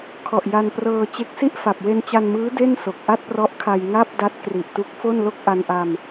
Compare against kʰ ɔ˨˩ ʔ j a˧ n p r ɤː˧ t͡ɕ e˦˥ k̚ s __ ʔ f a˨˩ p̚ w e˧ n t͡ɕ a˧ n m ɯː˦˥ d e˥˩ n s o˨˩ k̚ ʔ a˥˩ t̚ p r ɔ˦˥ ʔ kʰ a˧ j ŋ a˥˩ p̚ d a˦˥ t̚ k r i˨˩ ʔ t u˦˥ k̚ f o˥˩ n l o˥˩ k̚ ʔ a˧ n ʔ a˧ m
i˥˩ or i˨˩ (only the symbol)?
i˥˩